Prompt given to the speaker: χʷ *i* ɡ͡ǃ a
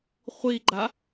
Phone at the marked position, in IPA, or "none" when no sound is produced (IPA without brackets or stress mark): i